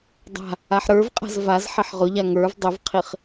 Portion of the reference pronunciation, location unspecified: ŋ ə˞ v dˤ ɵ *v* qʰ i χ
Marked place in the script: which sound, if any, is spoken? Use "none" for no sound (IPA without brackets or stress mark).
v